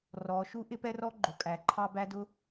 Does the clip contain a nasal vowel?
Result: no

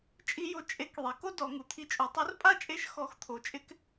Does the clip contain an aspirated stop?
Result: yes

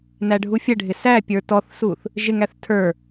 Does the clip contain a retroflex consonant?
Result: yes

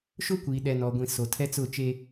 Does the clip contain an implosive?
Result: yes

